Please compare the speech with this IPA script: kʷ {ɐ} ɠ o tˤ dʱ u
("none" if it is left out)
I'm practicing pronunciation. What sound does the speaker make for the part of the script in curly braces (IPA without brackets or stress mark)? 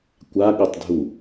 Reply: a